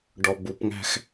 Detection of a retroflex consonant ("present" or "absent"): present